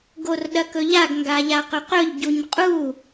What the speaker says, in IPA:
ɡorɗɐkɵʎaɡ ŋɡaʎaqɵqɵʎ ɟuɲqʼu

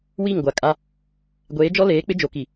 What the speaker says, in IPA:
wi˦˨ŋɡʷa˨kʼa˦ | ɡʷeː˨˦d͡ʒɔ˦leː˨˦ k͡pɪ˦d͡ʒo˨ki˨

